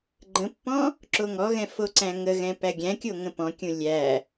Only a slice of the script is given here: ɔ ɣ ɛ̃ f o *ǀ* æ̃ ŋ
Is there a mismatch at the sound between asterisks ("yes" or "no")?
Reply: no